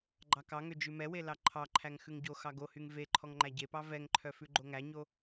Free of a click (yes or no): no